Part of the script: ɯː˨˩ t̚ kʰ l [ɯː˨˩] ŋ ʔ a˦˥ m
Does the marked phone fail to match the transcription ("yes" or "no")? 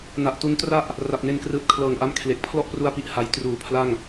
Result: yes